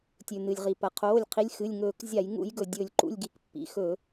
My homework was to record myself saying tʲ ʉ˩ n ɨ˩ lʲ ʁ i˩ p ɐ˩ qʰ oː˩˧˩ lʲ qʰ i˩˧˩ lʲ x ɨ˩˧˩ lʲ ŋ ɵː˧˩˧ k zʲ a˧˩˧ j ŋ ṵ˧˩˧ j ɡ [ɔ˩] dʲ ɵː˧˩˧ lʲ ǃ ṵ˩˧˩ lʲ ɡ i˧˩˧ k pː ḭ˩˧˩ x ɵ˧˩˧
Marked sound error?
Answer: yes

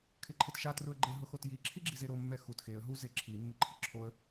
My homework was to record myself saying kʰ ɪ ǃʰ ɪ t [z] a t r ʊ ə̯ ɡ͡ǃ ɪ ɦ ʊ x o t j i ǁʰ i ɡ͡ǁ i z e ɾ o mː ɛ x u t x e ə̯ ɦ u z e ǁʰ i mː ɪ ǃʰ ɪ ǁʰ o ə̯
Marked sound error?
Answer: yes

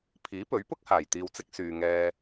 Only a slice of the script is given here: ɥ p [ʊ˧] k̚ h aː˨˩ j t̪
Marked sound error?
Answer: yes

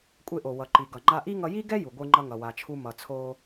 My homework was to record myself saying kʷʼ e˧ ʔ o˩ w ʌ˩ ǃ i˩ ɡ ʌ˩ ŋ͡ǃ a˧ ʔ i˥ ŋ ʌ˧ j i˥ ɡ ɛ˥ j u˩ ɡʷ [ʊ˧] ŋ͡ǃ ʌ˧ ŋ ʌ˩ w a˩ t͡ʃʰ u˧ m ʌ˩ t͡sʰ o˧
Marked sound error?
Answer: yes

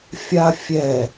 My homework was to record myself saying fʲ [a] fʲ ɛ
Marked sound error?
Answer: no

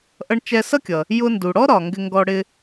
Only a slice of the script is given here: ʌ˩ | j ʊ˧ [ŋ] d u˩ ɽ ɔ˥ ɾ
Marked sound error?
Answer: yes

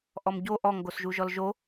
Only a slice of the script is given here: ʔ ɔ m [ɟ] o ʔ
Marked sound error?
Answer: no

